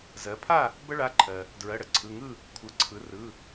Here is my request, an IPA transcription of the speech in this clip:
zɜ˩˧pʰa˥˨ | bə˦ɭa˩˧˩ ǃʰɜ˩ | dɹɜ˩˧˩ɽə˩ǀʰɯ˩˧˩ŋɯ˥˨ | kʷʰɯ˩˧ǀʰɯ˩˧ rɯ˩˧˩

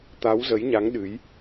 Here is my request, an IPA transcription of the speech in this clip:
t̪a˨˦wzə˨˦jɲa˨˦ŋ ɗɨ˨˦j

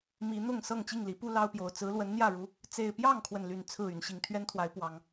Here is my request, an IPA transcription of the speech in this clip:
mi˨˦n̪ʊ˥˨ŋ sɤ˥˨ŋt͡ɕi˥˨ŋli˨˦pu˦ lɑ˦ʊ̯pjo˨˩ʊ̯ t͡sɹ̩˨˦lwə˨˦nn̪jä˥˨ɻu˨˦ | t͡se˨˩ɪ̯pjɑ˥˨ŋkʰwə˩n ly˨˩nt͡sʰɹ̩˥˨ y˨˩nɕi˥˨ŋ t̪ʰɥɛ˦nt̪ʰwa˨˦ɪ̯ pwɑ˨˩ŋ

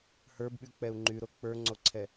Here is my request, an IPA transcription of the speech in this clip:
hə˞bɓyk͡pɛu̯ ŋ͡ǃyɾo k͡pə˞ŋ͡ǀoǀʰɛ

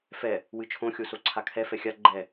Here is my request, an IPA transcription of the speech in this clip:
fɛ | wɨt͡ʃʰõ xʲosoǀʰakʰɛ fɛxʲa ɡ͡ǃɛ

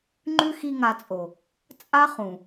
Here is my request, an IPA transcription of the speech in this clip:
ŋ͡ǃʉ˦ xi˦ŋa˧t͡sʼo˨ | t͡sʼa˦χũ˨

